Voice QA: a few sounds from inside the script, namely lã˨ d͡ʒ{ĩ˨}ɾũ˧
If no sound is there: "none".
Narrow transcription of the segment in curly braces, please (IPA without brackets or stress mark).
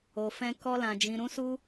ĩ˨